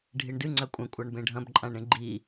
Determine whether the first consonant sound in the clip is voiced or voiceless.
voiced